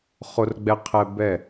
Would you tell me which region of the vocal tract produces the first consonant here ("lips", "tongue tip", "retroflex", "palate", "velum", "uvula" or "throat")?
uvula